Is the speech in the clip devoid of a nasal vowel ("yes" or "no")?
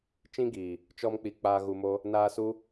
no